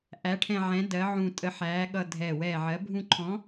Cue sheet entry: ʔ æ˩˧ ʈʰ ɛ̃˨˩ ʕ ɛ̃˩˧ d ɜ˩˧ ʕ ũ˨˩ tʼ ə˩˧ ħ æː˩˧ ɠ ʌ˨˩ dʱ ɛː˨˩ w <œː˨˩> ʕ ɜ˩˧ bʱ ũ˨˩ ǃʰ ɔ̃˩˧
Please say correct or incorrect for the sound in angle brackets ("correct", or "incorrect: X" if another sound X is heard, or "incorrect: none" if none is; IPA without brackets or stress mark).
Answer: incorrect: ɛː˨˩